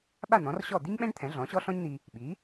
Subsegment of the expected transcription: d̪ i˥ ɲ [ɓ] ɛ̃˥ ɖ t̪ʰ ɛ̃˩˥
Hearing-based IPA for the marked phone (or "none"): ɓ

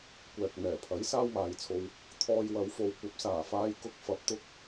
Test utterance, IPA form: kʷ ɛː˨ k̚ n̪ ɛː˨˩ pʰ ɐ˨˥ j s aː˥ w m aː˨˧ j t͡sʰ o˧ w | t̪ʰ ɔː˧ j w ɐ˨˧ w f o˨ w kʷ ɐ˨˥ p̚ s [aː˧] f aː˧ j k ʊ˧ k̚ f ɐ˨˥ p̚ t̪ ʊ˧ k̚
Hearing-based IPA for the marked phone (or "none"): aː˨˩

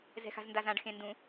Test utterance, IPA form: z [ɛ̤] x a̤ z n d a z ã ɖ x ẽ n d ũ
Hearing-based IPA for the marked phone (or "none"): ɛ̤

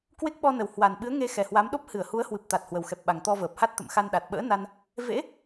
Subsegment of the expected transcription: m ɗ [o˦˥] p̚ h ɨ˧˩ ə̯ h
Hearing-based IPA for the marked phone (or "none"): o˦˥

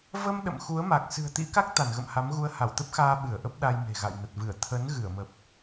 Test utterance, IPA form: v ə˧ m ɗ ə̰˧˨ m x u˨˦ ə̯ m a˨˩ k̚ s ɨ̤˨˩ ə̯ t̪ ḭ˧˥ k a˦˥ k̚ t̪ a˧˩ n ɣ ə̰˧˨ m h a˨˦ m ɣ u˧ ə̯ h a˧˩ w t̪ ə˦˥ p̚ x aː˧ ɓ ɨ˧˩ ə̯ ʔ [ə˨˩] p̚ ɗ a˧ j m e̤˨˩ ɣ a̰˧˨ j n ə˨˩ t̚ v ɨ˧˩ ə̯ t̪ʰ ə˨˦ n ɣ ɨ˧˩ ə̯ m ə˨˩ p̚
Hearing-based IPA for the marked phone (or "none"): ə˦˥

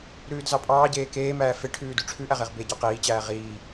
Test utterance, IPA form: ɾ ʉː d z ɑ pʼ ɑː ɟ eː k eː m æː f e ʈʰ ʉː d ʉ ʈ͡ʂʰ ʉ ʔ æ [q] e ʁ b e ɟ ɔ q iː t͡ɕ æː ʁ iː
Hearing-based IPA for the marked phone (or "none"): ʁ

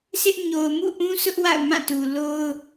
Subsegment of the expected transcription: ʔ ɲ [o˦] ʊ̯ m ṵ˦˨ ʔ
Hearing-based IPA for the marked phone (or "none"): o˨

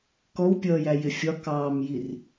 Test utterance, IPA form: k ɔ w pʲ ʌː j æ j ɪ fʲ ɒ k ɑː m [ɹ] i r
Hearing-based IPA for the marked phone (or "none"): j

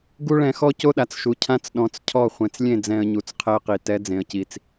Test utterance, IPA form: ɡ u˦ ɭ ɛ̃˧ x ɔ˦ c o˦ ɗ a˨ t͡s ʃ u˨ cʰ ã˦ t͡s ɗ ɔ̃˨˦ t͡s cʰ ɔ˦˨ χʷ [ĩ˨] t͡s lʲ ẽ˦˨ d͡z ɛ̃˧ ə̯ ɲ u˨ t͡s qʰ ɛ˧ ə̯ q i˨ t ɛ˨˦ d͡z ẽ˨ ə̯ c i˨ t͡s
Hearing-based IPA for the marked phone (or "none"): ẽ˨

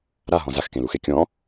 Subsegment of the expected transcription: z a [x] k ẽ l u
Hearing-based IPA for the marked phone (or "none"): x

